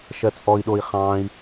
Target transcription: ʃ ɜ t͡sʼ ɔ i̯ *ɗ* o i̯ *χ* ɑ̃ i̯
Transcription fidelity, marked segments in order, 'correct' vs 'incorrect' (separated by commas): correct, correct